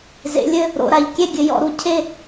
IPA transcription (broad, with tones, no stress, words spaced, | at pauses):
zḛ˩˧lʲɘ˥˨ | ɾo̰˩˧ɾa˩˧ʎkʲɛ˥˨ ɡʲɘ˩˧jɔ̰˩˧ ɾu˥˨ cʰe˥˨